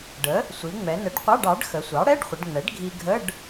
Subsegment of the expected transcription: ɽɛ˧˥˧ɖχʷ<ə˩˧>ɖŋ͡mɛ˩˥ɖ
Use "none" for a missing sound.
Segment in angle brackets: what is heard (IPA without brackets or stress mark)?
ə˩˧